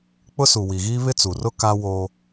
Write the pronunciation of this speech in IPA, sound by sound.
k͡p ʊ˦ s u˨ w i˨ ɣ iː˦ β ɪ˦ t͡s u˨ r ʊ˦ k a˦ w o˦

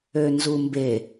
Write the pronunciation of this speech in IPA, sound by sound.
ø n z u m b e

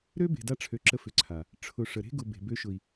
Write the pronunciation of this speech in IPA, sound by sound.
ɾ ø˦ b e̤˨ d a˦ ʈ͡ʂʰ ø˨ ǁ ə˦ f ʏ˨˦ ǀʰ a˨ | ʈ͡ʂʰ ʊ˨ ʂ ə˨ ɾ e̤˦ ɡ ʊ˨ b e̤˨ b ø˦ ʃ ʊ˨ i̯

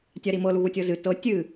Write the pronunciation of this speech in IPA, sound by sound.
tʲ a ɾ i m ɤ l u ɣ u tʲ ɤ z ɨ t ɤ tʲ ɨ

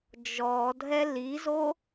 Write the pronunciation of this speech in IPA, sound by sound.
d͡ʒ ɔ dʱ ɛ l i z o

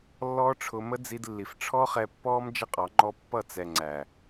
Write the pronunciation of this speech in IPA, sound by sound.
lː ɔː˦ ʈ͡ʂʰ ʊ˧ m ə˦ d͡z i˧ d lː i˨ f ʈ͡ʂʰ ɔ˦ χ ɛ˧ pː ɔː˦ m d͡ʒ ə˦ qʼ ɑ˨˦ ŋ͡ǃ ɔ˦ pː ʌ˦˨ t͡s ɛ˨ ŋ͡ǀ æ˨

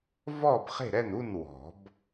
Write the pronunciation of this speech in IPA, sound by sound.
v ɔː˥˩ b χ e̤˥˩ ɾ ɛ˥˩ n u˥˩ n w ɔ̤˨˩˦ b

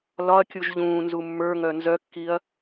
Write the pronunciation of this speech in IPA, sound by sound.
l ɒ ɐ̯ kʲ u ʒ ʎ ũː n z u mː ə˞ ŋ œ n z œ kː i ɐ̯

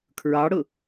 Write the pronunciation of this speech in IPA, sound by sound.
kʰ ɹ ɑ ɽ ʊ

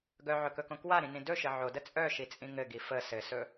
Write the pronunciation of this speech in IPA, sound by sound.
ɡ œ ʕ ɵ k ɵ k õ k w a ɾ ĩ n ĩ d ɵ ʃ ɘ ʕ o d ə t͡sʼ œ ʃ i t͡sʼ ĩ ŋ ɘ ɡ i f ə s ɘ s ɵ

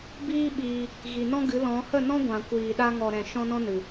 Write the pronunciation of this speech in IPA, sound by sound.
b iː˦ ɓ iː˧ | ɣ i˨ n ɔ̃˦ ɡ ɨ˨˦ l ɔ̃˨˦ h ə˦˨ n ɔ̃˦ ɡʷ ã˨ kʷ iː˨ ɗ a˦ ŋ ɔ˨ ɾ ɛ̃˨ ʃ ɔ̃˦ n ɔ̃˦ n ɨ˨

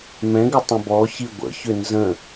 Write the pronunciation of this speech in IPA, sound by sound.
m ɛ̃ ɡ ʏ tˤ ə̃ b ɔ ç i ɡʷ ə̰ ç ʏ n z ə̃

